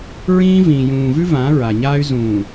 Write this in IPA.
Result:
ɹ ĩː˦ v ĩː˨ j ũː˨ v ʉ˦ v ã˨˦ ɹ a˨ ɲ aː˦ y̯ z ũː˨

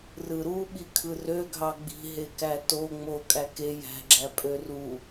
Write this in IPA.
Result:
r ɯ ɾ u ɓ i kʰ ɯ r ø ɡʱ ɑ ɡ͡b i̤ ɦ e k æ t o ŋ͡m o kʼ æ k e j æ̤ ɡ͡ǁ æ pʼ ø r u

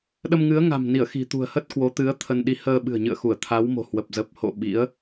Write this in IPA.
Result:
ɗ ə˧ m ŋ ɨ˨˦ ə̯ ŋ a̤˨˩ m n i˧˩ ə̯ x i̤˨˩ t̪ ṳ˨˩ ə̯ h ə˦˥ t̚ k w o˨˦ t̪ ɨ˨˦ ə̯ t̪ʰ ə˧ n ɗ i˧ h əː˧ ɓ ɨ̤˨˩ ə̯ ɲ ɨ̰˧˨ ə̯ x u˧˩ ə̯ t̪ʰ a˨˦ w m o̤˨˩ h w ə˨˩ p̚ z ə˨˩ p̚ h o̰˧˨ ɓ ḭ˧˥ ə̯

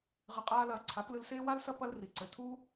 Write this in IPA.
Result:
ʁ ɘ˧ qʼ aː˦ l ɐː˧ ǀʰ a˨˦ p l ɨ˧ l s eː˦ w a˦ l s ɐ˦ p ɐ˦ l r i˨ ǀ ɘ˨ tʰ uː˦

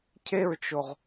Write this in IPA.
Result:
cʰ e ɹ t͡ʃ o ʁ

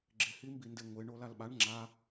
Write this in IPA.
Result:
ɡ͡ǁ ɪ h i m b i n d e ŋʷ ɪ ɳ o l a l ɓ a ɳ ŋ͡ǁ a

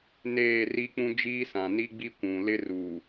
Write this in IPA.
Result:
n eː˦˨ r i˦ k͡p ũ˦ d͡ʒ iː˦ s ã˨ n i˦ ɡ͡b i˦ kʷ ũ˨ l ɪ˦ r uː˨

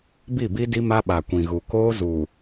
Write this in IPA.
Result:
b i˦˨ b i˦ d i˦ m a˦ ɓ a˨ kʷ ĩ˨ ɣ u˨ k oː˦ z u˨

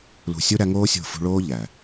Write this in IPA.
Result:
l ṳ˨ sʲ u˧ ɾ æ˦ ŋ oː˦ sʲ o̤˦˨ f ṳ˧ ɭ oː˦ ʎ æ˨

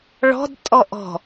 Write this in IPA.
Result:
ɭ ɔ̤ d tʼ ɔ ʔ ɔ̤

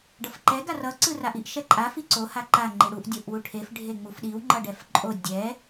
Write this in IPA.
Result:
ɖ ʌ f ǃ ɛ ɡ a r ʌ ǀ ɯ r a ʔ i ʔ ʃ ɛ ǃʼ a f i ǀ o h a ǃ a ŋ͡ǃ i ɽ u ʔ dʲ o ʔ w u ʈʰ e f ɖʱ e ŋ͡m u f ɗ i w ŋ͡ǃ ʌ ɖ ɛ f ǃʼ o dʲ ɛ

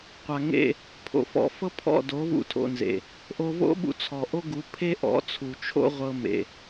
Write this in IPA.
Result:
qʷ a˨ ŋ ḛ˦˨ | pʰ o̰˨ f ɔ̰˧ f ɤ˦ pʰ ɔ̰˦˨ d o˨˦ v ṵ˧ tʰ o̰˧ n z ḛ˨ | ʔ o˧ v o̰˦ ɓ ṵ˧ t͡sʰ ɔ˨ ʔ o˦ ɡ u˨˦ pʰ e˦ ʔ ɔ̰˨˦ t͡sʰ u˨ t͡ʃʰ o̰˦ ʁʷ ɤ˧ m ḛ˨

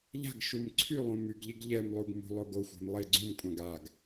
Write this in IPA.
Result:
ʎ a̤ ɡ ʃ u m ǀʰ y lˠ ũ m y ɡ ʎ i ɡ ʎ ɛ m lˠ u ɡ m ṳ lˠ o ɡ o xʷ ɛ̤ m lˠ e ɡ͡ǀ ũ m kʷʼ ã ɡ a ɡ

